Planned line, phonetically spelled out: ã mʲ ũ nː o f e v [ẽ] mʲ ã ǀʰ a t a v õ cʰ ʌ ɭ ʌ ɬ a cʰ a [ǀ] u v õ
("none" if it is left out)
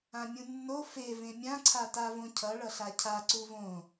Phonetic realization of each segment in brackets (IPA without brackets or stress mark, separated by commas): ẽ, ǀ